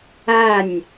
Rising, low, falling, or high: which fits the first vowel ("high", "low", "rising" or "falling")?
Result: falling